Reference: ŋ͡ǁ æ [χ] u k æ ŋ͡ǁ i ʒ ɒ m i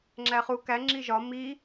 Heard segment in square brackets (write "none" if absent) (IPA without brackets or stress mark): χ